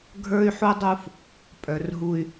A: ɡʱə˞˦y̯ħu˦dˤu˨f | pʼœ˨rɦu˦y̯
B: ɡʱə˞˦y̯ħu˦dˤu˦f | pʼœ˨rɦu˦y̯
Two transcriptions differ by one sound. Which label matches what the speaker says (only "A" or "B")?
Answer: B